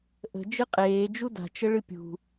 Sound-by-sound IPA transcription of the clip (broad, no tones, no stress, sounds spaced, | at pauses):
ʔ ə̤ d͡ʒ ɨ qʼ eː d͡ʒ u d a̤ t͡ʃ ə ɭ ɨ pʲ ṳ